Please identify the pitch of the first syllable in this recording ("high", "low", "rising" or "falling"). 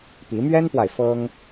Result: rising